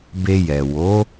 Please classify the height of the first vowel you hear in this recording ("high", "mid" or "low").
mid